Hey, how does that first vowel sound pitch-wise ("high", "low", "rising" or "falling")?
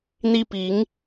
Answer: high